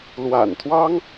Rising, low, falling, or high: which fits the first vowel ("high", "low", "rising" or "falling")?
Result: low